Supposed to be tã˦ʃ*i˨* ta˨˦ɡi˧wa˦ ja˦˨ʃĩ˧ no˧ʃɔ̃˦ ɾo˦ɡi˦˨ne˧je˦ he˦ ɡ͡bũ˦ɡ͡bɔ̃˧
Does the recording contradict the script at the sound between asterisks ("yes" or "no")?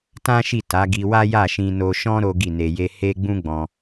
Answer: yes